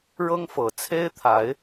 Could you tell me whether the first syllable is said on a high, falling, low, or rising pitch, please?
high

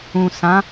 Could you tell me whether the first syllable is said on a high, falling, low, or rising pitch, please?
low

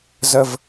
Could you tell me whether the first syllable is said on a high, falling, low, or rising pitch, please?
low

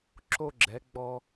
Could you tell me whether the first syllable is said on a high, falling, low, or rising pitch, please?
high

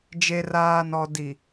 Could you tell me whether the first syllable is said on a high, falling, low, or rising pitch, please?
low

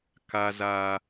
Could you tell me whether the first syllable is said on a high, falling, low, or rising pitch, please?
high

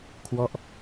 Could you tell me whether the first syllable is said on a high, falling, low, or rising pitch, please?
falling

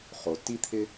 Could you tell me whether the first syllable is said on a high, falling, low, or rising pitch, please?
low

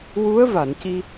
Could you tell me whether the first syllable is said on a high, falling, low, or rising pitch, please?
rising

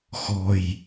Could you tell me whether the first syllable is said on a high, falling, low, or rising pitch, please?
low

